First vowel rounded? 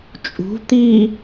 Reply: yes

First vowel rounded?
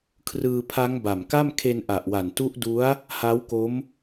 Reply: no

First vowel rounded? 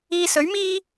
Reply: no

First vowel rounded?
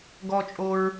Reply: yes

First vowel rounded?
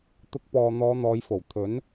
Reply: yes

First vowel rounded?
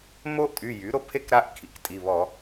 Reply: yes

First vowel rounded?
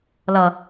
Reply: no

